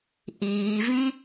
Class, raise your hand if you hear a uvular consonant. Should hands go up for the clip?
no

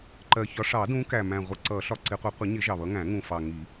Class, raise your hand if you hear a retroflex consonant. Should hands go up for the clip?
yes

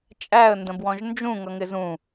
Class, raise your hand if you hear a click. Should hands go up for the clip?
no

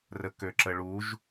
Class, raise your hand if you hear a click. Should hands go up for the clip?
yes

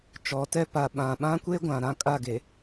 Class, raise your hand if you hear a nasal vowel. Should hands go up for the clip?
yes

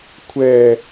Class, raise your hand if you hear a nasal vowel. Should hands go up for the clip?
no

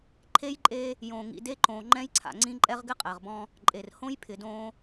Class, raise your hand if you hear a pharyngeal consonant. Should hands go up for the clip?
no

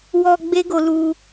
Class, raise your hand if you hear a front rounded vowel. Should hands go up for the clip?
no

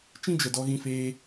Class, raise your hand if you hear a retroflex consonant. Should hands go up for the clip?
no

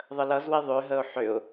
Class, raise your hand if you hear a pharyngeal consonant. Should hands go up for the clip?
yes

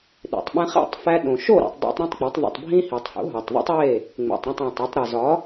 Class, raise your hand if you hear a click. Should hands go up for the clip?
no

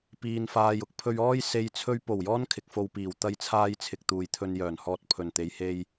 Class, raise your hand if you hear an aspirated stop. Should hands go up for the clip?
yes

